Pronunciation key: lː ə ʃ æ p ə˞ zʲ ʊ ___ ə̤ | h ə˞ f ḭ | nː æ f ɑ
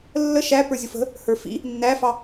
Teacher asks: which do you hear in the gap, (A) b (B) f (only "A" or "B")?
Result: B